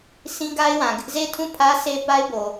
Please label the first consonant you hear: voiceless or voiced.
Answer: voiceless